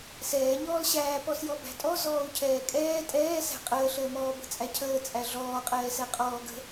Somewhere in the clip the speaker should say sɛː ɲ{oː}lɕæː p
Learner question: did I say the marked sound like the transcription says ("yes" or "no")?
no